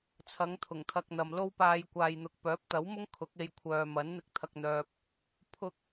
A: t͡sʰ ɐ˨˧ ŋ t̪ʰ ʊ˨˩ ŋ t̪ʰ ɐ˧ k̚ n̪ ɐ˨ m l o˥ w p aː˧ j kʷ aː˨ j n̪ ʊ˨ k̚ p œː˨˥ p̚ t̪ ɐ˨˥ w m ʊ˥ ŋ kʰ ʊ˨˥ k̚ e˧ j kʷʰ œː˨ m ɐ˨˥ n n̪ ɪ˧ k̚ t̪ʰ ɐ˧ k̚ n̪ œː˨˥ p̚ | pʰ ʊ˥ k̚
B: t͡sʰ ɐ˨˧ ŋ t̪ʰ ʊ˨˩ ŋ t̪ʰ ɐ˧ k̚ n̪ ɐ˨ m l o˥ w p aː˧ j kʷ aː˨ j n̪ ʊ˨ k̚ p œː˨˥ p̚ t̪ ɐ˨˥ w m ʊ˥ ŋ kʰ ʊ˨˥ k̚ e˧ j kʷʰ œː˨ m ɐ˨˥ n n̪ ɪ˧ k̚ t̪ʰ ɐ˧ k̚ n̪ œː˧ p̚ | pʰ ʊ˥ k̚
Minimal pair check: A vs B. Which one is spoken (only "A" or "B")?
B